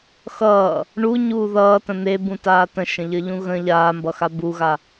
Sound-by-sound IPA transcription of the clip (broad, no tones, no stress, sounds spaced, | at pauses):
x ʌː | ɳ u ɲ uː ð ʌː t ə̃ n̪ e b ũ t aː t ə̃ ʃ ə̃ ʎ ə ʎ ũ ɣ ə̃ ʎ aː m b ʌ x a b u ɣ a